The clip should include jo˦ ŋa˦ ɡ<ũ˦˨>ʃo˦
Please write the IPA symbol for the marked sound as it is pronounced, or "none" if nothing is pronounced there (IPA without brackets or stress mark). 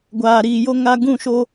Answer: ũ˦˨